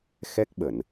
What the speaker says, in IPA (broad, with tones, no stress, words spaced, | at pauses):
xɛ˦˥k̚ɓə˧˩˨n